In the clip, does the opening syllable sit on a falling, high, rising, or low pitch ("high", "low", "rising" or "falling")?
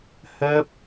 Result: falling